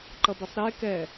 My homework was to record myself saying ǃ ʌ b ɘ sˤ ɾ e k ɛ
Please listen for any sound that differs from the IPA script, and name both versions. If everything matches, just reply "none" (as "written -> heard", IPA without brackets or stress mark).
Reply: none